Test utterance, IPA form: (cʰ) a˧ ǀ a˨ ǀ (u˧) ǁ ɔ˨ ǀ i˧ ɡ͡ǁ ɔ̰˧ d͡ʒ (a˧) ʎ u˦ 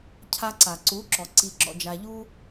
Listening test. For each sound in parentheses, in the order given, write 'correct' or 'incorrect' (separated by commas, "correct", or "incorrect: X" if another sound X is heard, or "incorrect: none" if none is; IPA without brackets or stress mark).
correct, incorrect: u˨˦, correct